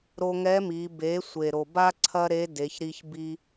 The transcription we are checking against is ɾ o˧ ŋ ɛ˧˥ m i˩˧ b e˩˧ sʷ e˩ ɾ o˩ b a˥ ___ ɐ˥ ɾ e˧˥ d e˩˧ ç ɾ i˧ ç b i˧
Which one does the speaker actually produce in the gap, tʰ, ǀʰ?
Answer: ǀʰ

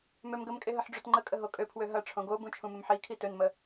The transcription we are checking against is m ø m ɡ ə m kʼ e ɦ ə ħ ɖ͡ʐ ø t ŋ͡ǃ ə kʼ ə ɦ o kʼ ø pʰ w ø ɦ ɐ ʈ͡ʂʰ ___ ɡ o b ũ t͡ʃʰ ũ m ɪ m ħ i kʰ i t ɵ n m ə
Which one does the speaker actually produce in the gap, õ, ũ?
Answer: õ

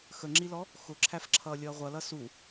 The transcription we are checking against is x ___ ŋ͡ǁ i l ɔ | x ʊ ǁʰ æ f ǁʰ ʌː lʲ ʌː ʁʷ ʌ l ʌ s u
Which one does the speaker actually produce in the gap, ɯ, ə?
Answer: ə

